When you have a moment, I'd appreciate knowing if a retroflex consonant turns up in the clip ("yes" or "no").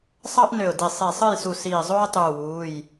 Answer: no